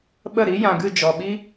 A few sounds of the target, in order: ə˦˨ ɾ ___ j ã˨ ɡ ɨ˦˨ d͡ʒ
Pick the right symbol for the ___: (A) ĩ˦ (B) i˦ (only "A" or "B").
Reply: B